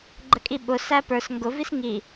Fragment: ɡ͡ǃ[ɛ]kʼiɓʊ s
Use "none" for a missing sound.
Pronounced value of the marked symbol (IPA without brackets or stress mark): ə